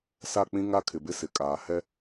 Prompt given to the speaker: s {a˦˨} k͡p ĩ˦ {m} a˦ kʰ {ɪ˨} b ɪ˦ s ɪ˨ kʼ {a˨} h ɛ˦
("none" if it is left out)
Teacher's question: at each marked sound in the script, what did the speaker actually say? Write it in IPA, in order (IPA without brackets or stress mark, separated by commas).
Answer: a˦˨, ŋ, ɪ˨, aː˨